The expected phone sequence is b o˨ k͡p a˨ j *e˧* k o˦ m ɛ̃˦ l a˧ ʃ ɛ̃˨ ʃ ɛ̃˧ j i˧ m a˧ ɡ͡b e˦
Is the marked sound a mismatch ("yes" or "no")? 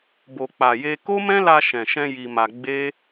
no